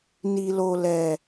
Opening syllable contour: low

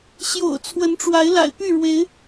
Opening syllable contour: low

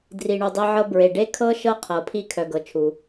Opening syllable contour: low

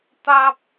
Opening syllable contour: high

